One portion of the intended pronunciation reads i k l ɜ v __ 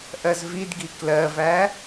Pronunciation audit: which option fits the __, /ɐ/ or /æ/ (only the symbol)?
æ